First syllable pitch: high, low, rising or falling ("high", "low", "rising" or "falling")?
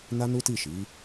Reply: high